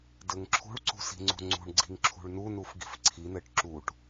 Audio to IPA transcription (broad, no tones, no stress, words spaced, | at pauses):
dɘŋǁʰṳɭǀṳ si̤ŋ͡ǀṳŋ͡ǀṳɳɡ͡ǀi̤ŋ ǁʰṳɭnunuf ɡi̤fǀʰinɘʈ ǁuʈ